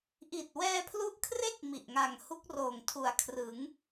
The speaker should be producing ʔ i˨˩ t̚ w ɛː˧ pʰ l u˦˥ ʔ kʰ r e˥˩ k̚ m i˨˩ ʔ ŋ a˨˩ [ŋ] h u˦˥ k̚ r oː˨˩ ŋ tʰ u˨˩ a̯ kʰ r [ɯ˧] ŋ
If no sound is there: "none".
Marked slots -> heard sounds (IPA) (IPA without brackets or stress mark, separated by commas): ŋ, ɯ˩˦